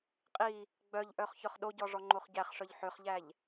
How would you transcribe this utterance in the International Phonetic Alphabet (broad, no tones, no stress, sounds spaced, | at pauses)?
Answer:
qʼ i | ɡ͡b œ ʎ ʔ œ χ ç œ χ ɗ o ɟ ɔ ʐ ɔ ŋ͡ǃ o χ ɟ æ χ ʂ œ ʎ ħ ø χ ʎ æ ʎ